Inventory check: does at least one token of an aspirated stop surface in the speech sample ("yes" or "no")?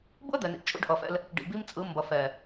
no